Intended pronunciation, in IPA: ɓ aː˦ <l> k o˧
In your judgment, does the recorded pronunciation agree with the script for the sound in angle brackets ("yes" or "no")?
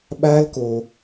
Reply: yes